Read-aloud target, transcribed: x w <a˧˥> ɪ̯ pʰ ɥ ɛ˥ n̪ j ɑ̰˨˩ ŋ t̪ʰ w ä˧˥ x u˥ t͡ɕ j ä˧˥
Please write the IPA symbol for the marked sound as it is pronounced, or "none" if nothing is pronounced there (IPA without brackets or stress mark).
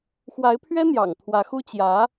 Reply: a˧˥